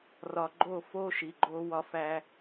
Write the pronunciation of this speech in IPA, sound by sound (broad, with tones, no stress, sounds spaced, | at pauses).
r ɒ˨ ɡ͡ǃ o˦˨ f o˦ ʃ i˨ ɡ͡ǃ o˦ w ɒ˦ f æ˦